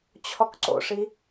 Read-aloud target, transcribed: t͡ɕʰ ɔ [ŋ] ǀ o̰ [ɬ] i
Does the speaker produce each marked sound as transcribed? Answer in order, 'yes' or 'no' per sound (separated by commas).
no, no